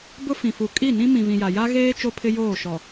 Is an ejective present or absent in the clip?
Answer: present